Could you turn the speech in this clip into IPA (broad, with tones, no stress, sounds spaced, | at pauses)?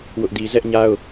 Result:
w ʊ˦ ʔ d i˦ z ɛ˦ ʔ ɲ a˦ ʊ̯